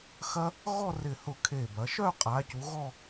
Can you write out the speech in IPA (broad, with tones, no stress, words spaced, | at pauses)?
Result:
xɐ˧ | ɣɔ˥˧rɪ˧˩hʊ˧˩ kʰe˧˩bɐ˩˧ ʃœ˥˧qʼa˩˧cu˩˧ ɣɔ˥˧